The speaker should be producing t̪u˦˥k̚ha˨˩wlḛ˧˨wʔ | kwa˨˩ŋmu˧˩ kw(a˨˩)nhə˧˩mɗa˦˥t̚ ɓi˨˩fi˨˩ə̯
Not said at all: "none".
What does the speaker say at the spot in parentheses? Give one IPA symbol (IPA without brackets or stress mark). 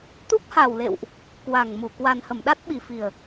a˨˩